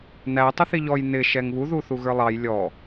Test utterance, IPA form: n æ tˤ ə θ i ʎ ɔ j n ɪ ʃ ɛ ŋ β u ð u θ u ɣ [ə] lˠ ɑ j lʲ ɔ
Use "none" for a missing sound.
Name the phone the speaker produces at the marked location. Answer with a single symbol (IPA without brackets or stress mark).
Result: ə˞